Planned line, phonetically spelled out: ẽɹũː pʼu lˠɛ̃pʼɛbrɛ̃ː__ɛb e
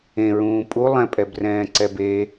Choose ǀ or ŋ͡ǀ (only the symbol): ǀ